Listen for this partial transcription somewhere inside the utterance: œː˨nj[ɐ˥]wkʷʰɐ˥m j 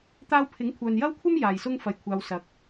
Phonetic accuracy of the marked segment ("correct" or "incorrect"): correct